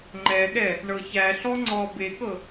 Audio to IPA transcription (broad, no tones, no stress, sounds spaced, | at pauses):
ŋ͡ǃ ɛ ɠ ɛ | ɳ ɤ ç æ ɬ ɔ ŋ͡ǀ ɔ b e k ɤ